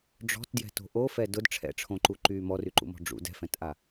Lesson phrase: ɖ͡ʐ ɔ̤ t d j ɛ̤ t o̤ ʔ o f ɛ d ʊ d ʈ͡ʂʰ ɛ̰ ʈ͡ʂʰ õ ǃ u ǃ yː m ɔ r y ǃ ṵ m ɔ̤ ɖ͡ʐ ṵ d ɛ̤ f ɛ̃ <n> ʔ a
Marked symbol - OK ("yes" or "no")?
no